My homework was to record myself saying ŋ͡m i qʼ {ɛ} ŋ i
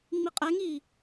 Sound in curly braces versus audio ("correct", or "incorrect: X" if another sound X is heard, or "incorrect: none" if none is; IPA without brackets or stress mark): correct